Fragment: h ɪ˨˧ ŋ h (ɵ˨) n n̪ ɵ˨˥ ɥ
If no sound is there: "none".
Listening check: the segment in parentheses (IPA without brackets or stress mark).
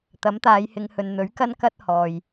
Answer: ɵ˨